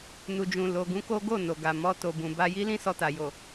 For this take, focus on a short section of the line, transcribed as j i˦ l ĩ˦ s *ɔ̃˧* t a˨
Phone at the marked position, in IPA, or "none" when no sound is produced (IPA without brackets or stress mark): ɔ˧